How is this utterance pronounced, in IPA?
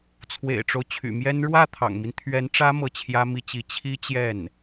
t͡sʰwḛ˨˩ɪ̯ʈ͡ʂo˦ʊ̯t͡ɕʰy̰˨˩ mjɛ˥n ɻwä˥˩t̪ʰɑ̰˨˩ŋmi˦n t̪ʰɥɛ˧˥nʈ͡ʂä˥ mɤ˥˩t͡ɕʰjä˥mi˥t͡ɕi˧˥ t͡ɕʰi˥t͡ɕjɛ˥˩n

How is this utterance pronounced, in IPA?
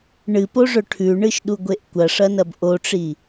ɳɨpoʐɵ ʈʰʉɳɨʃɗuɡʷeʔ kʷɐʂɐnɐb ʔoʈ͡ʂi

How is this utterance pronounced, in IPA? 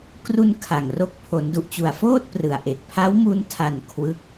kru˧n kʰa˨˩ŋro˥˩k̚ pʰo˩˦ndu˨˩ʔt͡ɕu˨˩a̯foː˥˩t̚ prɯ˨˩a̯ʔe˨˩k̚ pʰa˦˥wmu˧ntʰa˨˩n kʰwɯ˦˥k̚

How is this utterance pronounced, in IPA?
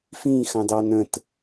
fĩxɑ̃dɑ nə̃t

